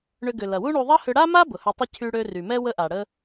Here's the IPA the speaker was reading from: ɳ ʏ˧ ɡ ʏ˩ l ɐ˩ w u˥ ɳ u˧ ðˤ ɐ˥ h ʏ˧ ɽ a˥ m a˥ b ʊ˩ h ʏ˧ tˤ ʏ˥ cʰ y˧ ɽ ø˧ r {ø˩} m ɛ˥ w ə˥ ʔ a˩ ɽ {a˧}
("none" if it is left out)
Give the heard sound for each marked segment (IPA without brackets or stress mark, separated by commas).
y˩, ə˧